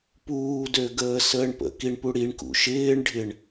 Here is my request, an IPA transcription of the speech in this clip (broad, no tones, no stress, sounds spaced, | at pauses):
p uː d ø ɡ əː s əː ɳ p ə̰ k i ɳ p u ɽ i ɳ k ṵ ʃ ɪː ɳ ɖʱ ɪ ɳ